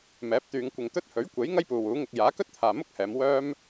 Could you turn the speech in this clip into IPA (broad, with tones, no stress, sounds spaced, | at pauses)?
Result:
m ɛː˨˥ p̚ t̪ yː˨˧ ŋ kʷ ɪ˨ ŋ t̪ ɵ˥ t̚ h ɵ˨˥ ɥ kʷ e˨˥ j ŋ ɐ˥ j p uː˨ w uː˨˥ ŋ ɪ˧ k̚ j aː˨˥ k ɵ˥ t̚ t̪ʰ aː˨ m ʊ˥ k̚ h ɛː˨˧ m w œː˥ m